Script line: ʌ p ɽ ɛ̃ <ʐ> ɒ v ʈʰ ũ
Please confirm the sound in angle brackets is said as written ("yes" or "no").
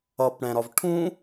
no